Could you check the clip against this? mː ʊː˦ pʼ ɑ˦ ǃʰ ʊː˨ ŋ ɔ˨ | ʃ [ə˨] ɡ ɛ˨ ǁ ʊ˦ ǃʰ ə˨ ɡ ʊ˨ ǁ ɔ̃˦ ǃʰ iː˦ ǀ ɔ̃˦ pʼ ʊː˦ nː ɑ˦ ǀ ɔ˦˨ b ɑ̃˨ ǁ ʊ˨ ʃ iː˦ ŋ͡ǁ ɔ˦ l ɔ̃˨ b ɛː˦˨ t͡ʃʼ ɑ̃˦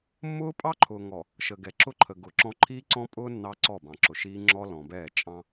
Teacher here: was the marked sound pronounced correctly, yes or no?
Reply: yes